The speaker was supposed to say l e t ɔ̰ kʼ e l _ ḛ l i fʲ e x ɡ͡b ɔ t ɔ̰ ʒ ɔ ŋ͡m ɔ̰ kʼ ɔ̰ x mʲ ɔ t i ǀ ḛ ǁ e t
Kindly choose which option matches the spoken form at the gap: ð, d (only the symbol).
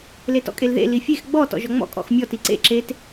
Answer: ð